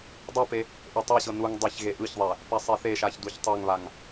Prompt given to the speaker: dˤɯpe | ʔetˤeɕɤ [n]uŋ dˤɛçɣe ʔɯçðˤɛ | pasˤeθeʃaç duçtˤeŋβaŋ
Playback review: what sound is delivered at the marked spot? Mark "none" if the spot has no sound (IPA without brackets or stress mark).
n